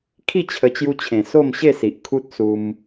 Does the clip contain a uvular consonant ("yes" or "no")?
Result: no